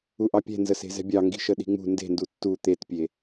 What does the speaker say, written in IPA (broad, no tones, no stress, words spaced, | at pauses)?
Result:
uʔɑpʲɛ̤nzə se̤zɛ̤bʲɑ ŋɡi̤ʃəɗi̤ŋ͡mṳ nde̤ndu tːu t̪etpʲe